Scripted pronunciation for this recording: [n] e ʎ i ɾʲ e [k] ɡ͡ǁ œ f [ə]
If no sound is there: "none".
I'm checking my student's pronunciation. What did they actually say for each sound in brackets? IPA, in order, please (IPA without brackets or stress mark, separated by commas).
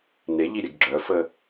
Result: n, ɡ, ə